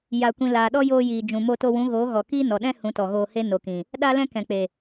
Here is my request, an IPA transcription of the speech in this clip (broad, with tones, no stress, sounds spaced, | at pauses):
j a˨ kʷ ĩ˨ l aː˨ ɗ ɔ˦ j oː˧ j iː˨ d͡ʒ ũ˨ m o˧ t o˧ w ũ˨˦ ɣ oː˨˦ ɣ ɔ˨ k iː˦ n ɔ˨ ɗ ɛ̃˦ h ũ˨˦ t ɔ˨ ɣ oː˧ h e˦ n o˨ k ĩ˨ | ɗ a˦ l ɛ̃˦ k ɛ̃˨ k͡p e˨